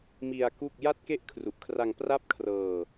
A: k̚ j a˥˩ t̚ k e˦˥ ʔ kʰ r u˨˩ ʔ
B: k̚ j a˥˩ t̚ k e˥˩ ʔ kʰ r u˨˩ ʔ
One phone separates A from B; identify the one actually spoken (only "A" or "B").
B